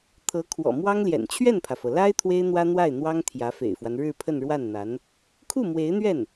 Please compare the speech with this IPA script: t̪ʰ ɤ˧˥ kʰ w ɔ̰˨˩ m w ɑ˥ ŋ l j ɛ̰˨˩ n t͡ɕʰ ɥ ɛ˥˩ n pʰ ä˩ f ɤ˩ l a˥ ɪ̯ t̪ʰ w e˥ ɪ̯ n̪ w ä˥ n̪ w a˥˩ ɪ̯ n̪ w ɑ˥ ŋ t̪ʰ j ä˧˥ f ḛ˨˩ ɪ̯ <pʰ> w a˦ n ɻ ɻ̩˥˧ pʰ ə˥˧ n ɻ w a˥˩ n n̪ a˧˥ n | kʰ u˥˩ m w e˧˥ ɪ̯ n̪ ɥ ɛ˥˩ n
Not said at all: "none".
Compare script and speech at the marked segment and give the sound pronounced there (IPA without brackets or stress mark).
f